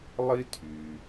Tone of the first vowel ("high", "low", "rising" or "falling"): high